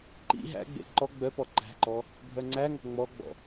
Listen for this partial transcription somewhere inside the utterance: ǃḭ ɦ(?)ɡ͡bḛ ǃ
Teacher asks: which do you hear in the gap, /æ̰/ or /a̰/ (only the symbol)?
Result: æ̰